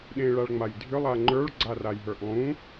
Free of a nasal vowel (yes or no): no